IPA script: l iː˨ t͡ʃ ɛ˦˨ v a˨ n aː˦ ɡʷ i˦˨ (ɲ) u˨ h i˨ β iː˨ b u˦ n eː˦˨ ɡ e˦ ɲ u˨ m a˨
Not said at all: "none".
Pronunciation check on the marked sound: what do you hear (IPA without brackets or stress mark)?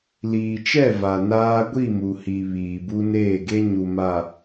m